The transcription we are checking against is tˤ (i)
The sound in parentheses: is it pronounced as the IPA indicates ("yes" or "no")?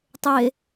no